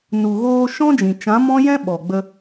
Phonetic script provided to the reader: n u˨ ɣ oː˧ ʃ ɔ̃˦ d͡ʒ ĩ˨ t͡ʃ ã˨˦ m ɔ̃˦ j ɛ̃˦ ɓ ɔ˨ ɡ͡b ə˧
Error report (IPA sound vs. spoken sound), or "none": none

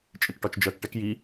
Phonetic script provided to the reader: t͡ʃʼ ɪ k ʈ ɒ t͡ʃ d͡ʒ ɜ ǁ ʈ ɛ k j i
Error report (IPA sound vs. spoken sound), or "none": ǁ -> k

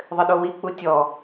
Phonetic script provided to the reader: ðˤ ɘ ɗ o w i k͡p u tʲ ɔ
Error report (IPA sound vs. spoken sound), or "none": none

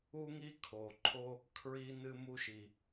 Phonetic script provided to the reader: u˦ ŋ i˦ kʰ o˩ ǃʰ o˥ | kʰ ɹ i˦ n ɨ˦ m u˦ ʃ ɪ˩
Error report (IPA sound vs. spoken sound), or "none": ɪ˩ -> i˩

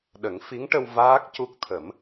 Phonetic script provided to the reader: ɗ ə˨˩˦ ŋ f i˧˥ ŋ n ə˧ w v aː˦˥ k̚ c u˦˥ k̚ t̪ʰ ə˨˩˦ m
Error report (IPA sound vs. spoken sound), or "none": n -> ʈ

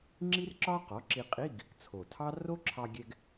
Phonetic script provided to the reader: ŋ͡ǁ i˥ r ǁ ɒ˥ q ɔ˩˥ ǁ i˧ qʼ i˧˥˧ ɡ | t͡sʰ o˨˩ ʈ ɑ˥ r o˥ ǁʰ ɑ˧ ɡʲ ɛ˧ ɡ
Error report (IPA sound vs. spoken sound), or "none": ʈ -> tʰ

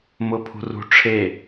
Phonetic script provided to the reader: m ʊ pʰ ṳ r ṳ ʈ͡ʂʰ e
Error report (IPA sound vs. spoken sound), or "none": none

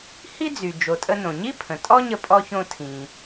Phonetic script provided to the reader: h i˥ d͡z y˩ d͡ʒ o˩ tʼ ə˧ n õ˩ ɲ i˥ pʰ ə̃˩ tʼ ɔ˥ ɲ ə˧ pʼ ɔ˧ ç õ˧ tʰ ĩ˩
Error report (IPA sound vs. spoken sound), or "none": none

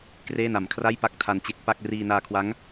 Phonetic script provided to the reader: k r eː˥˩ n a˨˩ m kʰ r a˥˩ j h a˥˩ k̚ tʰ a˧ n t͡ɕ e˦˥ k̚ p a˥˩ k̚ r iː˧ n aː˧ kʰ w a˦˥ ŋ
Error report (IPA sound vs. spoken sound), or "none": h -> p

